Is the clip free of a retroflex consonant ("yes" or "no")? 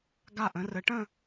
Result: no